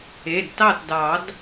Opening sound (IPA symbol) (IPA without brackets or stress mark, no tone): e